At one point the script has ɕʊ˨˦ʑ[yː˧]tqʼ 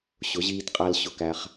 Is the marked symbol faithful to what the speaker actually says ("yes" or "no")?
no